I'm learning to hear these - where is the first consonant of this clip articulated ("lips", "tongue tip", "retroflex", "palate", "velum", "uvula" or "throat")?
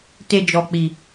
tongue tip